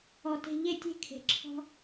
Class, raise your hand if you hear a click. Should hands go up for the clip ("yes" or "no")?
yes